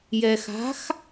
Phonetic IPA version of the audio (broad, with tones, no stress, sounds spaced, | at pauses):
j ɛ˩ x a̤˩˥ x